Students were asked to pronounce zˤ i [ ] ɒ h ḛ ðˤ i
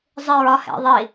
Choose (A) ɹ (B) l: A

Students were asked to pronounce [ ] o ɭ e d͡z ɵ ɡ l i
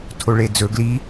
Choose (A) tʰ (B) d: A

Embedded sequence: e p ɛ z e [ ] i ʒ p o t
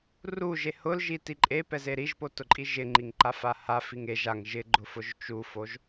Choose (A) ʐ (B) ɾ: B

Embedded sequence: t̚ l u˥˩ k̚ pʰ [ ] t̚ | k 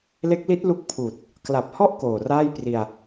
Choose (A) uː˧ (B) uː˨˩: B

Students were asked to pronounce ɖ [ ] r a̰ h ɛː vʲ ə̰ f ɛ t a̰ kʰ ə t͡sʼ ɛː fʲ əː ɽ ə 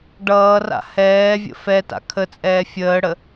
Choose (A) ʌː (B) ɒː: A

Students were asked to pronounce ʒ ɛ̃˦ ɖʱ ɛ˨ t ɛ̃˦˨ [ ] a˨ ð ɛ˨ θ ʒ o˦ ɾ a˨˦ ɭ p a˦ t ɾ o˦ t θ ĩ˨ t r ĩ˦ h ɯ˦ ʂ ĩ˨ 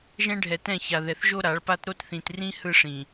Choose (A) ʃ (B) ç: B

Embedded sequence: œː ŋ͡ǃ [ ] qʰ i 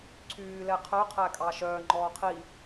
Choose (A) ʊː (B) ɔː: B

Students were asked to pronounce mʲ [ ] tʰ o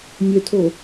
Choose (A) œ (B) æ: A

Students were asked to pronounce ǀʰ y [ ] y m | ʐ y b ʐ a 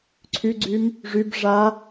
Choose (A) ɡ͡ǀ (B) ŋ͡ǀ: A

